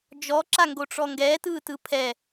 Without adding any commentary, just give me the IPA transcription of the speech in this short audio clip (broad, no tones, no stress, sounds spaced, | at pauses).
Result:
d͡ʒ ɔ ǁ a ŋ ɡ o ʈ͡ʂ ɔ ŋ ɡ ɛː t ɯː t ɯ pʰ ɛ